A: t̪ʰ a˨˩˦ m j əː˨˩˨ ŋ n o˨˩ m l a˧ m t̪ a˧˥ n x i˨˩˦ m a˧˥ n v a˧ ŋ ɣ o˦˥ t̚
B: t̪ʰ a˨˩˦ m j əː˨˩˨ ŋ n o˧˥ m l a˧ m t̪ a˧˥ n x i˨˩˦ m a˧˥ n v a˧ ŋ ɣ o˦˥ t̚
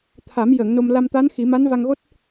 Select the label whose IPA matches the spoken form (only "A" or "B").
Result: A